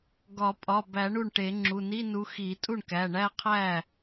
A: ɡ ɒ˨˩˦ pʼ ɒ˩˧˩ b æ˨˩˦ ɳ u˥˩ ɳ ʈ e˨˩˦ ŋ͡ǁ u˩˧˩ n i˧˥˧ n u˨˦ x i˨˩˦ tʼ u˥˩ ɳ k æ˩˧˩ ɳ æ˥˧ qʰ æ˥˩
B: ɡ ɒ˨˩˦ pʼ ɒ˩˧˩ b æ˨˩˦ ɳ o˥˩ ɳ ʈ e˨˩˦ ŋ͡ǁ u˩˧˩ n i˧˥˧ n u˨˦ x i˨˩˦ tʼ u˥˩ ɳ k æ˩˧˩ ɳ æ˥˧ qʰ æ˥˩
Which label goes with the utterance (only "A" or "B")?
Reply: A